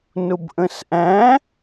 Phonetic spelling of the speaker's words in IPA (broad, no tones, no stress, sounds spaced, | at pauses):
n ʊ b ʔ ə̃ s ʔ æ̃